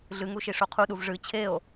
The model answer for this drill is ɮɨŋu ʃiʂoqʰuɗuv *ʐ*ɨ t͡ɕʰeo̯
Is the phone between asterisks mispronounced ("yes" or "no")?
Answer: no